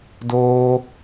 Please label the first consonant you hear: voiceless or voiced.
voiced